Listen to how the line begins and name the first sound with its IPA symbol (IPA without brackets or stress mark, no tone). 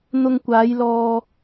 n̪